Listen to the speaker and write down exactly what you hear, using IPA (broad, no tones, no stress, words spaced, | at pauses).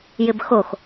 jɪbxox